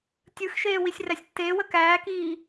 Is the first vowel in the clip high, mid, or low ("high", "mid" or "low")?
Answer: high